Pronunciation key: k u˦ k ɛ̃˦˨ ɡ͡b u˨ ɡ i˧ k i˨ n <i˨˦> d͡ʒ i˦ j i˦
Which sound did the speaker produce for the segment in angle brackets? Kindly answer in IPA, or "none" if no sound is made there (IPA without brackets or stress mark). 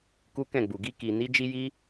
i˨˦